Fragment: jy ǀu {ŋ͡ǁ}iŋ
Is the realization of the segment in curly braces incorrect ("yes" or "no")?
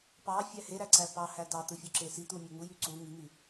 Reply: yes